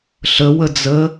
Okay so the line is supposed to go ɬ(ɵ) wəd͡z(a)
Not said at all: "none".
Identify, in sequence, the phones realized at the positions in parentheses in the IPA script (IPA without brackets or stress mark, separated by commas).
ə, ə